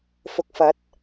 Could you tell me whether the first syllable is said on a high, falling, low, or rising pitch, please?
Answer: low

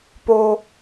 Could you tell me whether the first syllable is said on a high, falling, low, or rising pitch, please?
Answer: low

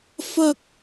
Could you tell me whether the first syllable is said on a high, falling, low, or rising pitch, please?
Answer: high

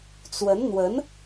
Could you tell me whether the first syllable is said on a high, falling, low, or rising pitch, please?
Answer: rising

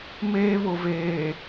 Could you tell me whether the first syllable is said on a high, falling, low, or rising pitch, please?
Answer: high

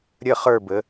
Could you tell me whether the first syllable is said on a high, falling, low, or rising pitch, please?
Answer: falling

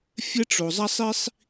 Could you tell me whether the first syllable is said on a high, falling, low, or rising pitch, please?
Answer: high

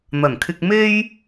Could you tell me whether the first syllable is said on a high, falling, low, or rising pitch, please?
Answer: low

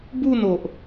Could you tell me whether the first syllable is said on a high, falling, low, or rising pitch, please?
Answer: falling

